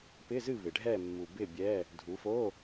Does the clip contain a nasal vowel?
no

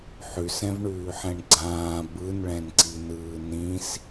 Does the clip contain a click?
yes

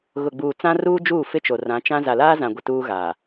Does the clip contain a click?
no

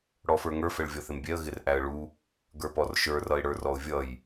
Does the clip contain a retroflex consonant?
yes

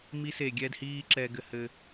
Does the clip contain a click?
yes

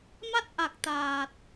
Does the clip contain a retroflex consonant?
no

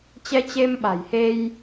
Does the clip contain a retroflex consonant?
no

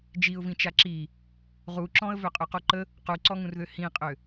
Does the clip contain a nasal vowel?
yes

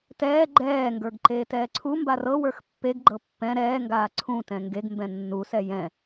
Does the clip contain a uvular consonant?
no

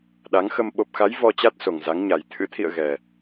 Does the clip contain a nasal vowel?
no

